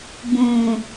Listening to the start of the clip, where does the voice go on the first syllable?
low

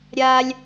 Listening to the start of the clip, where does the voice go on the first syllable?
high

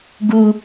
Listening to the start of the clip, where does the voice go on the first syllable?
high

